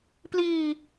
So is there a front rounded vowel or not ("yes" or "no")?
no